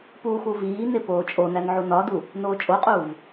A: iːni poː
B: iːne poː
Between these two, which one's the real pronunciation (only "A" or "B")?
B